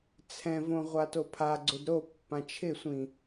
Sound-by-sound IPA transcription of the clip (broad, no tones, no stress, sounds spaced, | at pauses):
t͡sʰ ɛ̃ v õ ʁʷ a t o pʰ a ɡ͡ǀ ʊ d ɾ o pː ã t͡ʃʰ ɪ sʷ ĩ